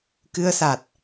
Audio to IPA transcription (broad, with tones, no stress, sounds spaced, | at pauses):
k ɨ˧ ə̯ s a˨˩ t̚